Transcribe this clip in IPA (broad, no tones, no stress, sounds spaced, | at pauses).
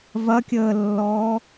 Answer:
v ɐ kʲ əː lː ɔː